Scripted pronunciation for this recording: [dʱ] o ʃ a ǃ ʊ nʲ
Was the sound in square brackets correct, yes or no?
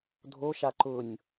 yes